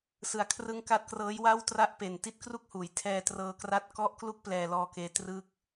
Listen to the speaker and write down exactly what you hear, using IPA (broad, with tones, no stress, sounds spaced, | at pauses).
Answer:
s ɯ˩˦ a̯ kʰ r ɯ˦˥ ŋ k a˦˥ t̚ k r ɤː˦˥ j w a˥˩ w t r a˥˩ ʔ p e˨˩ n t i˦˥ t̚ k r u˥˩ k̚ h uː˩˦ j tʰ ɛː˧ t r ɤː˧ k r a˦˥ t̚ k ɔ˦˥ ʔ k l u˦˥ k̚ p l ɛː˧ l ɔː˧ k eː˧ t r ɯː˥˩ k̚